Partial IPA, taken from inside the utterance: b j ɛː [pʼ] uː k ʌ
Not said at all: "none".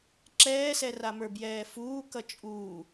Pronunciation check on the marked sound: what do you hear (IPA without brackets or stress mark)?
f